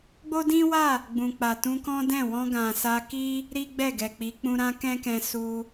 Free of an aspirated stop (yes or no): yes